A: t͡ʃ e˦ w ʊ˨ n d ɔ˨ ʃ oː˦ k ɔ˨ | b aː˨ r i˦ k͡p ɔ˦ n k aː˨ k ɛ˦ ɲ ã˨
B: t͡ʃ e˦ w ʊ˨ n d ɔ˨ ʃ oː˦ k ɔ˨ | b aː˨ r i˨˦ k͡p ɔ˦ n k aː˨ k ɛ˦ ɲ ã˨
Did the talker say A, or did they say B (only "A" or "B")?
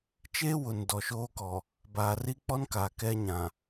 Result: A